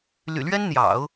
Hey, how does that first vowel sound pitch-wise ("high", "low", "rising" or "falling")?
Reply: low